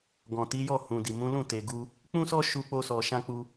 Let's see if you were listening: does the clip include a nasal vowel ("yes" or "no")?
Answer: yes